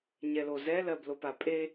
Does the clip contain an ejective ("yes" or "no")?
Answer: yes